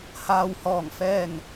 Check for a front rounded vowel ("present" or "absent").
absent